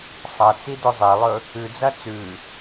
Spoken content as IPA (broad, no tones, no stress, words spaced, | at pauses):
sˤɐt͡si dɵzˤelˠɵ | ʉd͡zɐ t͡sʉ